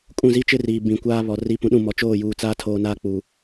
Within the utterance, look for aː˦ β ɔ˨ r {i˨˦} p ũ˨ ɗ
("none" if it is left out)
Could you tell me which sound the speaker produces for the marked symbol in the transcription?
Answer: i˨˦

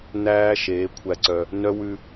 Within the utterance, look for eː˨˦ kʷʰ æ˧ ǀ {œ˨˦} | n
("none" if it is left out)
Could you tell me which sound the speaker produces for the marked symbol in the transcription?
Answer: œ˧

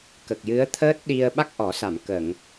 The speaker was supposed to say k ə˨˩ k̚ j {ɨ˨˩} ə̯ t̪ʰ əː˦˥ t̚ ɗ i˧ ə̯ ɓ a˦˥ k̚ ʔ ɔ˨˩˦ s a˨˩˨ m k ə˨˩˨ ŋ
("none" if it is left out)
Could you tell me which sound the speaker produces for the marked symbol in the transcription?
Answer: ɨ˧˥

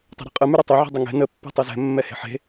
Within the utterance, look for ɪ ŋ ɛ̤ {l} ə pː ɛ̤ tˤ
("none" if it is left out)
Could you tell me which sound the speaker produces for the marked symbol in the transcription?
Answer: n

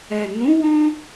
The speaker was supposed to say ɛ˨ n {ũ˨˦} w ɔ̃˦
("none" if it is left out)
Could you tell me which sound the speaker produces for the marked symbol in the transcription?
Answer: ũ˨˦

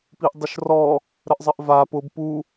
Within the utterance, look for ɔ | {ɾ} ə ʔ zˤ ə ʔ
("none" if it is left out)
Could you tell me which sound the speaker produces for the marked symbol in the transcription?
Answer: ɾ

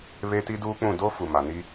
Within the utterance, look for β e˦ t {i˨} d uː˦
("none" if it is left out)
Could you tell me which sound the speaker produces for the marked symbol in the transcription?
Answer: i˦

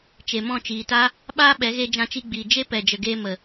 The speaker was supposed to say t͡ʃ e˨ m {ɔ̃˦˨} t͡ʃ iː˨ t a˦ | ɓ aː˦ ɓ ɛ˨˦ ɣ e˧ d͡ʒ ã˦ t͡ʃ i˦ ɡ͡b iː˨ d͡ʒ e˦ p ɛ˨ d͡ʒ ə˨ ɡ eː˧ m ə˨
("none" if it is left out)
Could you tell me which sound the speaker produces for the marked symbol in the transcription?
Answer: ɔ̃˦˨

